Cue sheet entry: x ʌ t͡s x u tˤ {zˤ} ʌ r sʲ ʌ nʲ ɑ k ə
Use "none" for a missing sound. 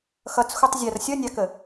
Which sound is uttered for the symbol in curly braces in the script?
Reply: zʲ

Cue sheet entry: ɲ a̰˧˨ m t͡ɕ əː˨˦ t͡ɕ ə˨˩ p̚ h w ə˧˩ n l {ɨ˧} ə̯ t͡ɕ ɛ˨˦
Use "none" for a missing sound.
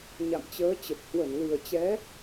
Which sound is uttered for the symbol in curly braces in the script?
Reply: ɨ˨˩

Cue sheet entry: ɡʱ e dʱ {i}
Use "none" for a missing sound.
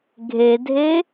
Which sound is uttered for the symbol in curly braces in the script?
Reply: e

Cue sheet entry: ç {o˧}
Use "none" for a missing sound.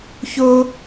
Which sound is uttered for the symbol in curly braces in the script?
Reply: o˧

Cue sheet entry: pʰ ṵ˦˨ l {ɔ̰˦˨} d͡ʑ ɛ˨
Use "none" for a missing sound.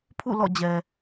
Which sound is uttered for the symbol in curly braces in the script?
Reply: ɔ̰˦˨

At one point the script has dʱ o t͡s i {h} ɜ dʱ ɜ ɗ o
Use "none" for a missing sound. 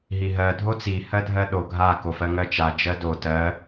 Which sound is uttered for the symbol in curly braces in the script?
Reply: h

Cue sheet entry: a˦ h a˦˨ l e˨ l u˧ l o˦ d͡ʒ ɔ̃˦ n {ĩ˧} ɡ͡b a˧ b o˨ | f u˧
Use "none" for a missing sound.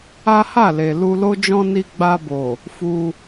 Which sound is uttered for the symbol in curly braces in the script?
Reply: i˧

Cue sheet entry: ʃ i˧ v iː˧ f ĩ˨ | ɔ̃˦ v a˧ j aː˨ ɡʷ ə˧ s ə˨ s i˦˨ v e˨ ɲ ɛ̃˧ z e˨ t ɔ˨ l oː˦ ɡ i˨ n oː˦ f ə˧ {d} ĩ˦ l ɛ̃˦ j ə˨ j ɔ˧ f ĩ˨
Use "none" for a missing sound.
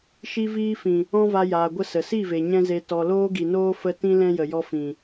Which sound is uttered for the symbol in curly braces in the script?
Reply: t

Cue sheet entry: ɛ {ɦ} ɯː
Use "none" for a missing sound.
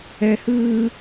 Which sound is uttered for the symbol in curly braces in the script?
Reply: h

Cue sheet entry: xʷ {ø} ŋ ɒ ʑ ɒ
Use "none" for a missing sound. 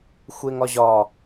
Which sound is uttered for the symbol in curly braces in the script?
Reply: e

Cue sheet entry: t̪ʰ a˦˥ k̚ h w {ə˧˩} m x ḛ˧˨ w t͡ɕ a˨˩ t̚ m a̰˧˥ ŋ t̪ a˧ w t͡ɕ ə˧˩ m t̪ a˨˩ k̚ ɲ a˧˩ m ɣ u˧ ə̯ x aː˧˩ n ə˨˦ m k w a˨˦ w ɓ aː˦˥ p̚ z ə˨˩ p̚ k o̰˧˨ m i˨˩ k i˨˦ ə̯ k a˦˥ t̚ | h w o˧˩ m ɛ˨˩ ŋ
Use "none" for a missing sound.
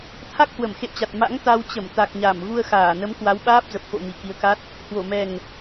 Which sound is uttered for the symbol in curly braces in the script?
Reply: ə˧˩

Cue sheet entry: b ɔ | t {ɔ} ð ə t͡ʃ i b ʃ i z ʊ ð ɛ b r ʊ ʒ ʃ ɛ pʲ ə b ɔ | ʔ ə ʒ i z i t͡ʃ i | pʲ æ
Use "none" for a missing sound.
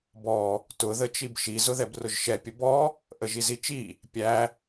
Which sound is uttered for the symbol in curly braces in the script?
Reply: ʊ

